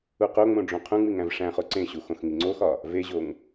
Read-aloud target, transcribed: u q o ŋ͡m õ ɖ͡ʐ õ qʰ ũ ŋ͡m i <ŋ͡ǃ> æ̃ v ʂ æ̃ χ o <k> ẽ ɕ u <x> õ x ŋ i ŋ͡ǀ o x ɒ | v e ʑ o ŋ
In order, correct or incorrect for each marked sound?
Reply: incorrect: ŋ, incorrect: ǀ, correct

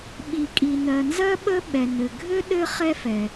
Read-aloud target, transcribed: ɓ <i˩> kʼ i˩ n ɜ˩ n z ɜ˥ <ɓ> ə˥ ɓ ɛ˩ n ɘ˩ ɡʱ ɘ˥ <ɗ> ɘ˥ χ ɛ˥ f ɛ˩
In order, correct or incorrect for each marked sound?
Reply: correct, correct, correct

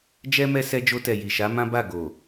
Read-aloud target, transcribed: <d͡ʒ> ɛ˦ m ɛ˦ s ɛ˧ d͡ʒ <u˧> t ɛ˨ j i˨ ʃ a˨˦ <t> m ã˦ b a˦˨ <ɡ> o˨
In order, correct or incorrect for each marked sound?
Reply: correct, incorrect: o˧, incorrect: none, correct

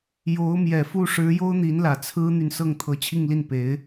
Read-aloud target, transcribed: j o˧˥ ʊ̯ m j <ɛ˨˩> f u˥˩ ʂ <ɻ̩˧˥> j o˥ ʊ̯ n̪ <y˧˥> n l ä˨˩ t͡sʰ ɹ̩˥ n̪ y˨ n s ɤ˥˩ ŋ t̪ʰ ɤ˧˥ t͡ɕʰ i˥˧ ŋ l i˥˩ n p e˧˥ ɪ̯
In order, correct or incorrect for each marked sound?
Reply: correct, correct, incorrect: i˧˥

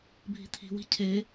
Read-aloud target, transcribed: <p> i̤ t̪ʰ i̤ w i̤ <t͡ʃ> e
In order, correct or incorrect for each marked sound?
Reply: incorrect: bʱ, incorrect: cʰ

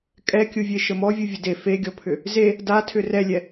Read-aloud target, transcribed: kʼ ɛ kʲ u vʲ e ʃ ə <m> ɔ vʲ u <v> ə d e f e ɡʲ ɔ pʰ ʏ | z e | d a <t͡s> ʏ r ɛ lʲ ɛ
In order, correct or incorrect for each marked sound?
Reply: correct, incorrect: vʲ, incorrect: tʰ

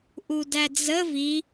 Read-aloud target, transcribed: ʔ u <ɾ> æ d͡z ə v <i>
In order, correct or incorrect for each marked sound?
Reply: incorrect: d, correct

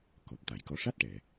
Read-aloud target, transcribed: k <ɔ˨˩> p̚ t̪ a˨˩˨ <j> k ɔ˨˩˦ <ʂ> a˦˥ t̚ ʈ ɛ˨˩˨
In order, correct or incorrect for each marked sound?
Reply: correct, correct, correct

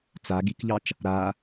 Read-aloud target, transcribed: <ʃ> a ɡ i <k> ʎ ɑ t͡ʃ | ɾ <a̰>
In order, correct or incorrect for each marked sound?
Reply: incorrect: t͡s, correct, incorrect: a

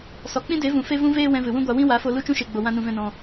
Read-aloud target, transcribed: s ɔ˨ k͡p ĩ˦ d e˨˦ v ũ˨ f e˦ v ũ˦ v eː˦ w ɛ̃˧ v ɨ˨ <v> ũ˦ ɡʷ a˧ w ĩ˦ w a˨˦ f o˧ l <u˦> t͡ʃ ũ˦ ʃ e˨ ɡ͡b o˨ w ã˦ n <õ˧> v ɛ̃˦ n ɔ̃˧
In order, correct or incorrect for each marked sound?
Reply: incorrect: w, incorrect: u˦˨, incorrect: ũ˧

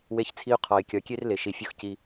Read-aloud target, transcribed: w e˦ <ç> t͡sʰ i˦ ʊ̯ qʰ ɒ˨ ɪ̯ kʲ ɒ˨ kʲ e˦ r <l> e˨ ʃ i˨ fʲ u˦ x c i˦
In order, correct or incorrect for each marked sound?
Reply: correct, correct

